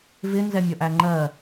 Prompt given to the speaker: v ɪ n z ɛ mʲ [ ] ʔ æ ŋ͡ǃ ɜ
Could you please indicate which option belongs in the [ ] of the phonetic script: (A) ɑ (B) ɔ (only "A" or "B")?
B